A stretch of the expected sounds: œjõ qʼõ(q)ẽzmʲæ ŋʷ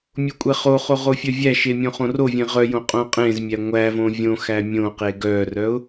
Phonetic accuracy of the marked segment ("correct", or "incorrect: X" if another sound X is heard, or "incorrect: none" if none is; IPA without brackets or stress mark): incorrect: qʼ